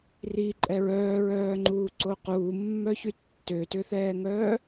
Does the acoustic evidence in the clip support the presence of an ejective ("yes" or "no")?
yes